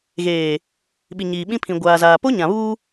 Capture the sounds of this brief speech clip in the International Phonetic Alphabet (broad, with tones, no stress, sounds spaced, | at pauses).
ɣ eː˨ | ɓ i˨ ɲ iː˨ ɓ ĩ˦ pʰ ĩ˨ ɡʷ aː˨ z aː˨ p o˦ ɲ ã˨ β uː˦